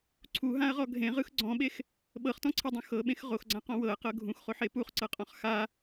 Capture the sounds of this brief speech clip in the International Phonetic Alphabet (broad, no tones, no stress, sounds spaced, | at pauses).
ǀʰ u ɦ ã ɐ̯ ʁ ɔ ɡʱ ẽ ʁ ɯ x ɡ͡ǀ ɔ̃ ɓ e x | ɓ ɤ χ t ɔ̃ ǀʰ e dˤ ũ x ɤ ɓ ẽ x ʁ o x ɡ͡ǀ ã q ɔ̃ w ɤ ɐ̯ q ɤ ɡʱ ũ x χ o ħ e p u χ ǀ ɤ qʼ ɔ̃ χ x a